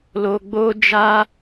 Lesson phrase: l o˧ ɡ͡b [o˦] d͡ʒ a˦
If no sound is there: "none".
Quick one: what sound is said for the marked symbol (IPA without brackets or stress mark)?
o˦